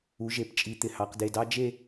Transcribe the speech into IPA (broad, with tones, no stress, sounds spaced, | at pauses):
u˩˧ ʒ e˩˧ p t͡ʃʼ i˩˧ t̪ ɪ˩˧ h ɑ˩˧ q d e˧˩ d ɑ˥ d͡ʒ e˥˧